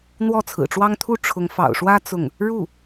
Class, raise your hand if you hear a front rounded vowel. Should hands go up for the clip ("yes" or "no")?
no